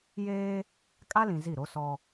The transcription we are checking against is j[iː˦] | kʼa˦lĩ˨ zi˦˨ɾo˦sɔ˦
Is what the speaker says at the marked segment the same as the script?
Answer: no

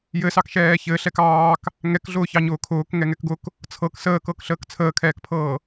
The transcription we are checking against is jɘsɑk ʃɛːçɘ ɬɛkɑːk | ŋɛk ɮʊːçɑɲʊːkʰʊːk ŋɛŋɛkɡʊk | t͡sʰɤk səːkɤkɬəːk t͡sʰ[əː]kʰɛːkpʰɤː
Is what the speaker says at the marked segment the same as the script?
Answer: yes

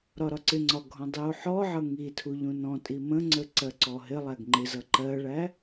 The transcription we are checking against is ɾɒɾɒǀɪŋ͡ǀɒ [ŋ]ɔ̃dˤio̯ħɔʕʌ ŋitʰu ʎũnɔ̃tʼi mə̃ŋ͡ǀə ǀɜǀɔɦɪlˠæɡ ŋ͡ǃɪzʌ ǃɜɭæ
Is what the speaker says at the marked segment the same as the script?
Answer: no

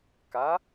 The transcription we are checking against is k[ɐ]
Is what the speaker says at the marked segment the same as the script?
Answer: no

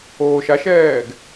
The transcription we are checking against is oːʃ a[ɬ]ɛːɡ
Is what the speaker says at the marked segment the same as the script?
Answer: no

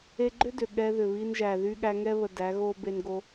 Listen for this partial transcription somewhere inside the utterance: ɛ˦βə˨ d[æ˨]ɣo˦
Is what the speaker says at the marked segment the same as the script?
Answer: no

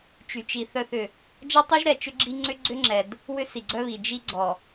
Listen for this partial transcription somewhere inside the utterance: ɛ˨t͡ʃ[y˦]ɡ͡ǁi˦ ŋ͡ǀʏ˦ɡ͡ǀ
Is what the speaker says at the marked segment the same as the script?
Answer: no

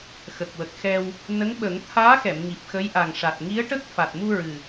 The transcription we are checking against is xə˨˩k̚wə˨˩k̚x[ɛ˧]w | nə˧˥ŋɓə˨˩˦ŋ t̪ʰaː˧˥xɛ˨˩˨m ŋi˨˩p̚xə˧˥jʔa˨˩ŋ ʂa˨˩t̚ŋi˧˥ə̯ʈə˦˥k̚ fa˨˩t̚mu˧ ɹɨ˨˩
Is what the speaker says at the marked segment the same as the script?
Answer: yes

